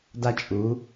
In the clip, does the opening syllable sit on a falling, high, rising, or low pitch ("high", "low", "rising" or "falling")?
high